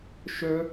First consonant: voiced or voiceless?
voiceless